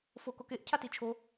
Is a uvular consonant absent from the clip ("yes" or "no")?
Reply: yes